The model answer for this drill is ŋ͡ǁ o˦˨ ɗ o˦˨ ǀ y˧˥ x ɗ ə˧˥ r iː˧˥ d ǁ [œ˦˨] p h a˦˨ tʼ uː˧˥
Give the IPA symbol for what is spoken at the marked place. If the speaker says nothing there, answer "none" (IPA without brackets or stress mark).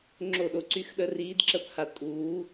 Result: ə˦˨